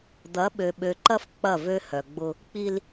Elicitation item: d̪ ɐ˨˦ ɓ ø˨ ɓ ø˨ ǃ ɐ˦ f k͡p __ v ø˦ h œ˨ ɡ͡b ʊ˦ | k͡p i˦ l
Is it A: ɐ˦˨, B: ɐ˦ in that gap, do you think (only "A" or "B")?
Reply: A